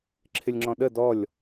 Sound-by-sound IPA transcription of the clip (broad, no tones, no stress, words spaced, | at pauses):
ǁʰɪlʲŋ͡ǁɔ̃ɗə dɔlʲ